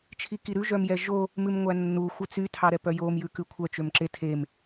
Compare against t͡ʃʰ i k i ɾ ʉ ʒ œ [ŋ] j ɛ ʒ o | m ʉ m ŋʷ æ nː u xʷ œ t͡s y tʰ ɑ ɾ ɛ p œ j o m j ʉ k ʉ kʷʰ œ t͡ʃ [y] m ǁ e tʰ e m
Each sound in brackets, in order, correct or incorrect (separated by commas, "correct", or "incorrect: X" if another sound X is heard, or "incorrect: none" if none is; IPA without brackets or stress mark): incorrect: m, incorrect: ø